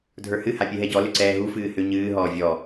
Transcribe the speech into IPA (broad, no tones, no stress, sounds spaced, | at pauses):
dʱ ə˞ h ɨ h a pʲ ɨ ɦ ɛ ɟ ɔ l ʏ ǀ ɛː ɦ u f ɨː h ʏ ɲ ɨː ɦ ɔː vʲ ɔ